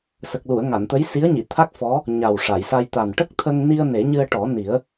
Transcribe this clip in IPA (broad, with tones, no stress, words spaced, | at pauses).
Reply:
sə˨˩k̚lu˨˩˨ə̯ ŋa˨˩˨nt̪ə˧˥jsi˧˥ə̯ɲi˨˩˨ t̪ʰa˦˥k̚fɔ˧˥ | ɲa˨˩wʂa˨˩˨jsa˧j t̪a˨˩nʈə˦˥k̚t̪ʰə˧ŋ ni˧ə̯ ne˨˩˦ɲɨ˧ə̯ʈɔ˨˩˦ni˨˩˦ə̯